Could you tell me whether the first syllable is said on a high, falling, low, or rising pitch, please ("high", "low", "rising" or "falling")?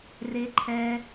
high